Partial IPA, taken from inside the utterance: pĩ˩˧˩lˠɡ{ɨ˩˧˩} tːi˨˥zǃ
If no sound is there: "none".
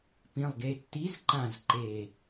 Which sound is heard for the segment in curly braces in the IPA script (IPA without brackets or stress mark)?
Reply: e˩˧˩